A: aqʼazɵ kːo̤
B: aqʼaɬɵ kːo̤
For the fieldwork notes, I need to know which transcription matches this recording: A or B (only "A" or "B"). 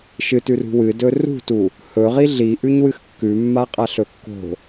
B